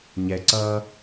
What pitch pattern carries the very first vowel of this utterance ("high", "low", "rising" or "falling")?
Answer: low